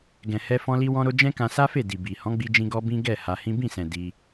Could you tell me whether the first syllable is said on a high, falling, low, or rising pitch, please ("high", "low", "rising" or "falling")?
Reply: low